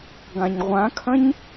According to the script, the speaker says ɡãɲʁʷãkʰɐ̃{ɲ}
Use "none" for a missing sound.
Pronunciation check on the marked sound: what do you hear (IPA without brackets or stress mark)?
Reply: ɲ